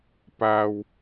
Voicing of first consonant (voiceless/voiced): voiceless